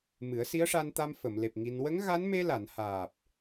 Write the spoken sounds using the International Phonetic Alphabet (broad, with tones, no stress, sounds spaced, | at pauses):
m ɨ˨˩˦ ə̯ s i˧˥ ə̯ ʂ a˧ n t̪ a˧ m f ə˨˩˨ m l e˨˩ p̚ ŋ i˧ n w ə˧˥ ŋ ɣ a˧˥ n m e˧ l a˨˩˨ n h aː˨˩ p̚